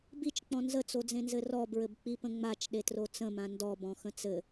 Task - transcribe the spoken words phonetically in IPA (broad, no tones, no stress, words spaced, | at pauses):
bit͡ʃk͡pɔ̃ nzət͡sod͡zẽnzɘ rɔbɹɘbk͡pipə̃ ŋ͡mat͡ʃɗetro t͡sə̃mã ndɔbɔ̃xə̃ t͡sɘ